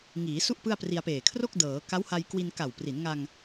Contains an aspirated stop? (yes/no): yes